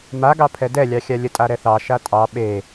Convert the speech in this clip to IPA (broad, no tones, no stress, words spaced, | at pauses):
maɡɑ pʰɛdɛlʲɑxʲa lʲətʼaɾɛθɑ ʃatʼɑ ɓe